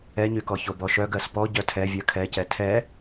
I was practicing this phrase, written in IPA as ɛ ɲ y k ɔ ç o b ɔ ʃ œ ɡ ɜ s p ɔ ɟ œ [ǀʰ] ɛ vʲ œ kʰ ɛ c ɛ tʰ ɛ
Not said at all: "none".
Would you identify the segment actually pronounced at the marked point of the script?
tʰ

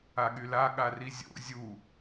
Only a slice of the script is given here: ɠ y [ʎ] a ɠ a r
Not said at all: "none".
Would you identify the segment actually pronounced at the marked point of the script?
l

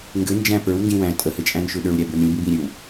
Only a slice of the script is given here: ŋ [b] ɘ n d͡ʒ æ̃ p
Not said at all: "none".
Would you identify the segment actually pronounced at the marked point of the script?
ɡ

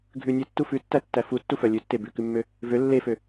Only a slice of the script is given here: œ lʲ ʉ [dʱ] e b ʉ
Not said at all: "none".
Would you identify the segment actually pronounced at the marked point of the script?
tː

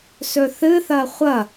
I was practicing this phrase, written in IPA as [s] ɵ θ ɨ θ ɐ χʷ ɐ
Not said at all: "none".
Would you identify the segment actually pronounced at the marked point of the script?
s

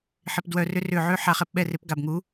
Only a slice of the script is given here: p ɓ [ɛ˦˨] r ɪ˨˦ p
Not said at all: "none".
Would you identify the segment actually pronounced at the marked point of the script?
ɛ˦˨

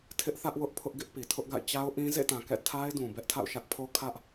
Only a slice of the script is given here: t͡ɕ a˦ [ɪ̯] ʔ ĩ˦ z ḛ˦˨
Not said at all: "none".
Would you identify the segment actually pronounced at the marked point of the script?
ʊ̯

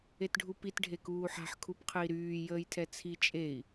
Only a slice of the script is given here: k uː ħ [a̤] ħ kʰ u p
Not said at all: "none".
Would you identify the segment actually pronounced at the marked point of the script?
a̤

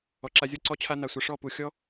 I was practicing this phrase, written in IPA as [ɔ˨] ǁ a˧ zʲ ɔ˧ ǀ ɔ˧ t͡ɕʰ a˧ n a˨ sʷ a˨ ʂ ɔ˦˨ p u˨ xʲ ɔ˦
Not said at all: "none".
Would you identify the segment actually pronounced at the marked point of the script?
ɔ˨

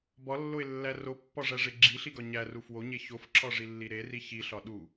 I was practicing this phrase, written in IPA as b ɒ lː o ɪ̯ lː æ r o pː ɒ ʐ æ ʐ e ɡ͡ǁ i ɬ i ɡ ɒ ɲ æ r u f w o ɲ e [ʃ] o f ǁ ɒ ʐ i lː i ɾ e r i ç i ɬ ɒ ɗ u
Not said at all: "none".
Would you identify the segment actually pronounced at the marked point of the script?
ç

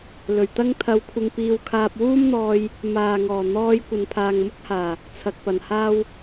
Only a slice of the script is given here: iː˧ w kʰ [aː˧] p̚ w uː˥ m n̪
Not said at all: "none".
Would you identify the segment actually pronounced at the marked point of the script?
aː˧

